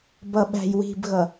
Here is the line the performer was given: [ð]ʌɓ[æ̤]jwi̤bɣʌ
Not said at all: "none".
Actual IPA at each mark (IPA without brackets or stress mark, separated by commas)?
b, æ̤